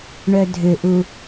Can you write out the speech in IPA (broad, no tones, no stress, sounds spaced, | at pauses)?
ɳ œ dʱ ʏ ʔ u